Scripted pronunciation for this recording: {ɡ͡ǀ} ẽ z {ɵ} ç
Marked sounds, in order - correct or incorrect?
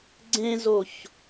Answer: correct, incorrect

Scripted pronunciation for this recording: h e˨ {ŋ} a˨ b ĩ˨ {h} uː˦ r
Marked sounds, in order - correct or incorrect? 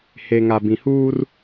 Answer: correct, correct

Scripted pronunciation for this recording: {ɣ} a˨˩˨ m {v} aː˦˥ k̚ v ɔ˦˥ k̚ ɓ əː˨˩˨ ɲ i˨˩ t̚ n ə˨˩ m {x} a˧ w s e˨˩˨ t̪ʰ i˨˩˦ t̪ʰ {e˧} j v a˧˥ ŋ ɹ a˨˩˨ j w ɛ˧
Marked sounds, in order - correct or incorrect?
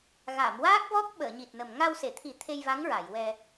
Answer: correct, incorrect, incorrect, correct

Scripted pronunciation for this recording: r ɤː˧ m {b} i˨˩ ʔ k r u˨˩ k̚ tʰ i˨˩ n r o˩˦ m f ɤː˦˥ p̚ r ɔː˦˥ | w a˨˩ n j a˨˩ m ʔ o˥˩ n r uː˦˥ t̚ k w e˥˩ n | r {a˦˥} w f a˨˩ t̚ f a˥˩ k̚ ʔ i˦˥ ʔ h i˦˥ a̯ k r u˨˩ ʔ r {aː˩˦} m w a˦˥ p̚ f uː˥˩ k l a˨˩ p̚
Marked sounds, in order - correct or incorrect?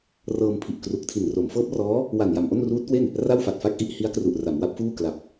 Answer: incorrect, incorrect, incorrect

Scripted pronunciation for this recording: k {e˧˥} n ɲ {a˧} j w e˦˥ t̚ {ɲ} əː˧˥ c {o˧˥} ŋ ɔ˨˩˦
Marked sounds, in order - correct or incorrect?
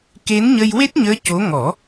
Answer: correct, incorrect, correct, correct

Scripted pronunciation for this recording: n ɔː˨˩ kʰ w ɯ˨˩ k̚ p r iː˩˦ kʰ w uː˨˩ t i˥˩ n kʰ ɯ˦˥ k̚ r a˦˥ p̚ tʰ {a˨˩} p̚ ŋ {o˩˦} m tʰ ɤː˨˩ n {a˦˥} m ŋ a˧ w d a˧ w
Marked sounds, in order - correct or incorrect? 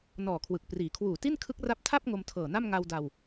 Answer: incorrect, incorrect, incorrect

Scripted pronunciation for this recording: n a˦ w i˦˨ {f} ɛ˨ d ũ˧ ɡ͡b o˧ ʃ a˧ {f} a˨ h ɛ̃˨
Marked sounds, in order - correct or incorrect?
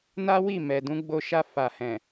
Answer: incorrect, correct

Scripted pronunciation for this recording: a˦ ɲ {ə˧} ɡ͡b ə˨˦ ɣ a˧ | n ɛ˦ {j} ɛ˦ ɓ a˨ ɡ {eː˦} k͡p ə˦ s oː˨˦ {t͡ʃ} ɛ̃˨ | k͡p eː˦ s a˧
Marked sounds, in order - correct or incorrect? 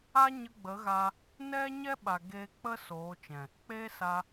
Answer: correct, incorrect, incorrect, correct

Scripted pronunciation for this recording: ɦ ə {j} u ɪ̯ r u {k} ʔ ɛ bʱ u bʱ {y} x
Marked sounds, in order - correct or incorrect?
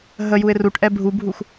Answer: correct, incorrect, incorrect

